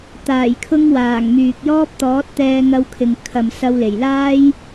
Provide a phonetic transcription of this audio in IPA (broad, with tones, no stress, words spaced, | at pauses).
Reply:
t̪aː˨˩jkʰʊ˧ŋ waː˨˩ŋmyː˨k̚jɔː˥p̚ t̪ɔː˨˥t̚t̪ɛː˧ŋɐ˧wkʰɪ˨ŋ kʰɐ˨msɐ˧wle˨˩jlaː˥j